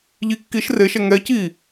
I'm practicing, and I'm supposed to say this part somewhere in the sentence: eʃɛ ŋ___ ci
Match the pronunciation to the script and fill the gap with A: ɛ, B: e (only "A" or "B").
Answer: A